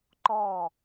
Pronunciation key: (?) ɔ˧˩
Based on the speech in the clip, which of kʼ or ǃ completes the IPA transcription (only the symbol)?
ǃ